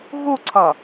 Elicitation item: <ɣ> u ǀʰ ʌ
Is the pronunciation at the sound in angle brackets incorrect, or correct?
correct